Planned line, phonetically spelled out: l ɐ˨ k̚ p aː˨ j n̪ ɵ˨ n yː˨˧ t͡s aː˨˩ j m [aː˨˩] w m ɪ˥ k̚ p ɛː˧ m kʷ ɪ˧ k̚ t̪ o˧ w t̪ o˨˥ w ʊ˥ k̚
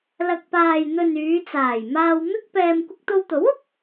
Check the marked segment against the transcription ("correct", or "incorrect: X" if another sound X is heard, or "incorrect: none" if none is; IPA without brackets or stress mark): incorrect: aː˧